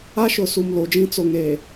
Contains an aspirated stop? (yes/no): no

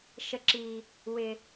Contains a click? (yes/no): yes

